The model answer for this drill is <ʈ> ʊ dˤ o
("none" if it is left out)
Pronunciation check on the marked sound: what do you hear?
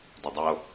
d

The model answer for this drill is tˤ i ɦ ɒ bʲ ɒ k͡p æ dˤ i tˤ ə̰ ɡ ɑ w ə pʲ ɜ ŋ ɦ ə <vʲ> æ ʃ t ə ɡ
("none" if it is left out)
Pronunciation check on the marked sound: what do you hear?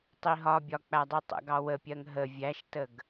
vʲ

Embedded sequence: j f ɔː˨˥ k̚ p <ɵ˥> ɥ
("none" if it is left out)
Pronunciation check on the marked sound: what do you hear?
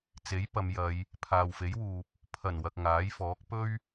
ɵ˥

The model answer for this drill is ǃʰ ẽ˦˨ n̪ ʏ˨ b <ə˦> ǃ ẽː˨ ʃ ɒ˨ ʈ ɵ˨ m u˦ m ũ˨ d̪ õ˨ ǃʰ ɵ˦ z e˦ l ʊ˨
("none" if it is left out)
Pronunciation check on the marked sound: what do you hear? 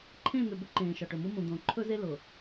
ʏ˦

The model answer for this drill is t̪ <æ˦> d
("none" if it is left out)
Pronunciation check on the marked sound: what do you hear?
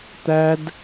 æ˦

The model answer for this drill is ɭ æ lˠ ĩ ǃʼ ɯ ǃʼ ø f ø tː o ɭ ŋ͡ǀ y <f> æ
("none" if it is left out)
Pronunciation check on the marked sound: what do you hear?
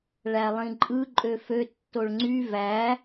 v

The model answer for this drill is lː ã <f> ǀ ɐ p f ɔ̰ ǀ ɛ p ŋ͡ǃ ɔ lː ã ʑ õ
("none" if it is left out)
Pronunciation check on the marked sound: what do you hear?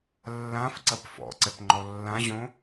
f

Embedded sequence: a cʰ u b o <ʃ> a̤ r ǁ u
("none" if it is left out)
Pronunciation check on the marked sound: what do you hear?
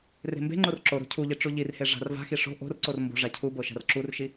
ʃ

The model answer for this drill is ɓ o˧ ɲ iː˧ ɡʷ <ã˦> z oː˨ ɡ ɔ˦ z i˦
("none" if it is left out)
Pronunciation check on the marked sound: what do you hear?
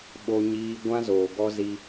ã˦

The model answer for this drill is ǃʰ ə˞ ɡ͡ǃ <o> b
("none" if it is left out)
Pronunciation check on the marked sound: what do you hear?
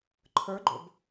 o̰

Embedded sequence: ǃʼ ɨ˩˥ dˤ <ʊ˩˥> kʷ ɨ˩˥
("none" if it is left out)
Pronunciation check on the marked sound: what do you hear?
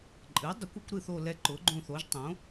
ʊ˩˥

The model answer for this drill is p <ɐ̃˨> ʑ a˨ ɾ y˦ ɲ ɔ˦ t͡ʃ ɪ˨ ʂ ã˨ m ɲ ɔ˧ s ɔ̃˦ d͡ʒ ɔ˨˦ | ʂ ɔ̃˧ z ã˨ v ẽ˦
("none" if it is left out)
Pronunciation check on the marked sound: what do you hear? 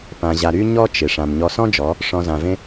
ã˨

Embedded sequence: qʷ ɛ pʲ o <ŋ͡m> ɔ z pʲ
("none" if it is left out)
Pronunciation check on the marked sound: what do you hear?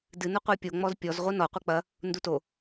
ŋ͡m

